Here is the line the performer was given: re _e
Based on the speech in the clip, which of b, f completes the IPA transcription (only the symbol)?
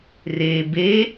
b